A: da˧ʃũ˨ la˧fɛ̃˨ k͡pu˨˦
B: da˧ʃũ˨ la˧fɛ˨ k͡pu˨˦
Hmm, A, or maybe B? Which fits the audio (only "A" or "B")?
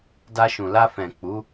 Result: A